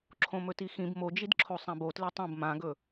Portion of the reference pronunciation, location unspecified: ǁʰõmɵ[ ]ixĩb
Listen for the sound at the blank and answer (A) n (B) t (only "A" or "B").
B